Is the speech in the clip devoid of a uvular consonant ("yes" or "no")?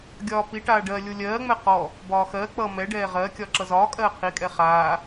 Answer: no